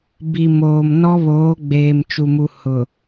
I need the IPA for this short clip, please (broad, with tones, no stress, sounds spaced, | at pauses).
b i˨ m oː˨ m n ɔ˦ β oː˨˦ ɡ͡b eː˨ m t͡ʃ u˨ m u˨ h ʊ˨